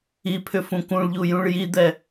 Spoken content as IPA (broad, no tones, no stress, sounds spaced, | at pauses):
i pʰ ʏ f ũ k ũ ɭ ʎ u j ũ ɭ j i d̪ ɛ